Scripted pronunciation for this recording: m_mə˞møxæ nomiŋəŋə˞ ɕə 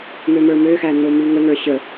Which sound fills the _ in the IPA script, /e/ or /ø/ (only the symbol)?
ø